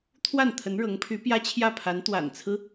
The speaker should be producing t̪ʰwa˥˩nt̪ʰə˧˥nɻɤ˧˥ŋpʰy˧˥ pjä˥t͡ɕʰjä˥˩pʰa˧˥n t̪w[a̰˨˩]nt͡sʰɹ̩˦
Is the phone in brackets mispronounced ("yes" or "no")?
no